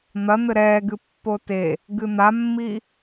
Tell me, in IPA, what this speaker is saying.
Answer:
n̪ ɐ n̪ ɘ ɾ ɛː ɡ ɨ pː o t e | ɡ ɨ n̪ a mː i

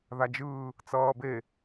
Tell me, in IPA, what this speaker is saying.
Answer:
ð a d͡ʒ ɯː | t͡s ʌː b e

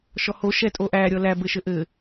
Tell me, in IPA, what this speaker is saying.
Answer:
ʃ ɔ h o ʃ ɛ tʼ o ʔ æ ɾʲ ɔ l æ b ɘ ʃ ɘ ʔ ɘ

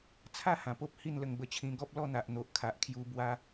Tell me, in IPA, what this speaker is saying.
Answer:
t͡sʰ a˥˧ h ã˨˩ p o˦ p̚ h i˥˧ n l ə˧ ŋ b ə˧ t͡ɕʰ ĩ˧ ɡ ɔ˦ p̚ l ɔ˥˧ n̪ a˨ ʔ n̪ o˨ ʔ kʰ a˨ ʔ kʰ j u˧ b w a˦

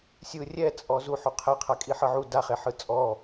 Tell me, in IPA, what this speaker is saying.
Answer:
sʲ ɯ rʲ ɛ t͡sʼ ɔ z u ħ u qʰ ɛ qʰ a kʼ i ħ ɤ ʕ u d a χ e ħ ɯ t͡sʼ ɔ

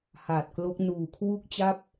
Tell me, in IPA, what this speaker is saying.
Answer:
h aː˨˩ t̚ k l o˦˥ k̚ n uː˨˩ kʰ w u˥˩ k̚ t͡ɕ a˥˩ p̚

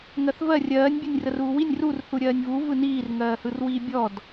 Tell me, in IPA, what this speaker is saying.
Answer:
ŋ ɜ θ v ɜ rʲ ɜː nʲ bʲ ɛ nʲ r ə r uː w i nʲ r u r θ u ɾʲ ɜː nʲ v u v ɯ n iː r ŋ ɜː h ɯ r w iː bʲ ɔ d

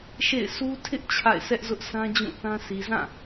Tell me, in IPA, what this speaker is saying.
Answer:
ʃ ḛ˦˨ ɪ̯ s u˦ tʰ ɪ˦ ʔ t͡ɕʰ a̰˦˨ ɪ̯ s ɛ˦ ʔ z ʊ˦ ʔ s ã˦ d͡ʑ ũ˦˨ θ ã˦ sʰ i˨ z ã˦˨

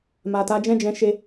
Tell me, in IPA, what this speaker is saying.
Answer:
m a˨ t a˨˦ d͡ʒ ɛ̃˦ d͡ʒ ɛ̃˧ ʃ e˦

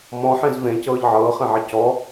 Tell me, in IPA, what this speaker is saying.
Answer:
m ɔ̃ ħ ẽ z v ẽ c ɤː ʎ ʕ ɤː χ ẽ ʕ e c ɔ

